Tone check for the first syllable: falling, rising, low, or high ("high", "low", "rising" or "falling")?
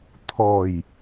low